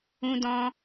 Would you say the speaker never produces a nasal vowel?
no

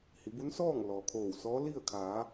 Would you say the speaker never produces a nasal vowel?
yes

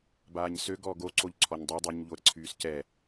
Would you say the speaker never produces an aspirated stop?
no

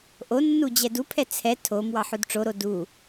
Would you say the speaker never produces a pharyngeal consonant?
no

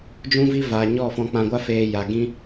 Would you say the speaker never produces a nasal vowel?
no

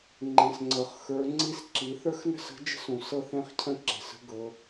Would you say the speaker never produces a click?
no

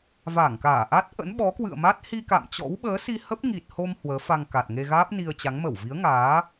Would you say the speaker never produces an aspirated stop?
yes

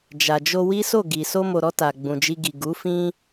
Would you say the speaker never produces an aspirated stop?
yes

